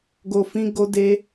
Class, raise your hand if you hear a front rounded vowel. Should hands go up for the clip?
no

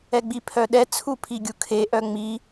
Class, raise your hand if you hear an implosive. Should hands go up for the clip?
yes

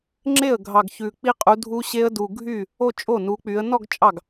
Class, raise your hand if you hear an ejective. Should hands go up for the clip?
yes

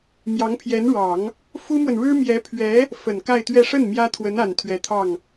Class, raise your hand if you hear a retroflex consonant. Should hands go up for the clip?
yes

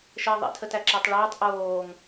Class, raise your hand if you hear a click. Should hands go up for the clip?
yes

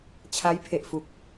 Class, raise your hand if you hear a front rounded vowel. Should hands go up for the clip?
no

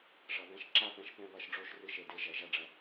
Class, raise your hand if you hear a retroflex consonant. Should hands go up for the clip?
yes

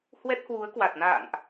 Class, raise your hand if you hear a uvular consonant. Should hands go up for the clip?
no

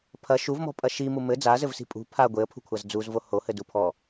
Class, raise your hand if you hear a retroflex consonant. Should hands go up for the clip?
no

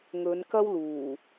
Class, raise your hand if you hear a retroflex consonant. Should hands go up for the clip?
no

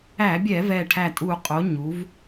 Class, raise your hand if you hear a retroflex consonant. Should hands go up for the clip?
yes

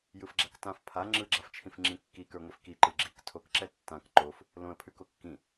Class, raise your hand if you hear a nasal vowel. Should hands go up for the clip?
yes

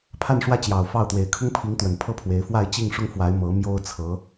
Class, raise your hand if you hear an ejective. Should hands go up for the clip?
no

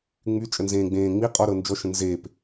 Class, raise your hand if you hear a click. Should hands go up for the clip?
no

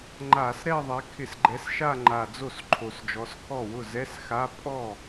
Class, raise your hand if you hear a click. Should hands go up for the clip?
yes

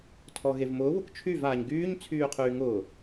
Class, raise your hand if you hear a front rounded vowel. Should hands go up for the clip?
yes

